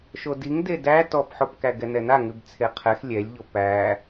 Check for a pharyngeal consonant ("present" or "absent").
present